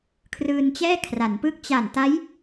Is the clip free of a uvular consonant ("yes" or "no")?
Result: yes